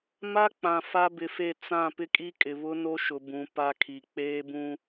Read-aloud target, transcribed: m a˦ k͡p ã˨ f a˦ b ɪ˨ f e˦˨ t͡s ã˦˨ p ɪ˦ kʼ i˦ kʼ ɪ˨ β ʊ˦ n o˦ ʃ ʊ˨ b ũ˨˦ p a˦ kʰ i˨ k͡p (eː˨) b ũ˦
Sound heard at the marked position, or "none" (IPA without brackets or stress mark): eː˦